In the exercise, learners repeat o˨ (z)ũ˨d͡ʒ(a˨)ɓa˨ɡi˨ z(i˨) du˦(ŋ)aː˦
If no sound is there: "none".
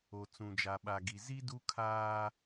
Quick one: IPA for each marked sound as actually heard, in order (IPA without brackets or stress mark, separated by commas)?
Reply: t͡s, a˨, i˦, kʰ